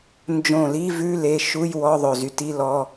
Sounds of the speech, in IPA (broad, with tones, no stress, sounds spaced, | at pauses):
n d͡ʒ õ˧˩ l i˧˥˧ v ʉ˧˥˧ l e˧˥˧ ʃ u˧˥˧ j w ɔ˧˥˧ ðˤ ɵ˧˩ z y˧˩ t i˧˥˧ l ɔ˧˥˧